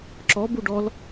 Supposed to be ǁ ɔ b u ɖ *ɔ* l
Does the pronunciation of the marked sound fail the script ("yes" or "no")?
no